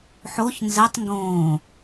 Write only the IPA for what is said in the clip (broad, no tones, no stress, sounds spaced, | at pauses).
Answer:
ħ o ç n z ɛ tˤ ŋ ɡ õː